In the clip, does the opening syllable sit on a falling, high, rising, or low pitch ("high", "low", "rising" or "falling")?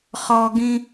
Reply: low